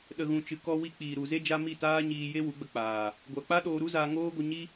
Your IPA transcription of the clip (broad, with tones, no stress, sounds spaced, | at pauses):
ɗ ə˨ ɣ ũ˨ t͡ʃ ɨ˨ k ɔ˧ w i˧ k͡p iː˨ ɾ u˨ z e˦ d͡ʒ a˦ m i˦˨ t aː˦ ɲ iː˧ j e˦ w u˨˦ ɡ͡b ə˧ k͡p aː˨ | ɡʷ a˨ k͡p a˦ ɗ oː˧ ɾ u˦ z aː˧ ŋ oː˦ ɡʷ ə˧ ɲ i˦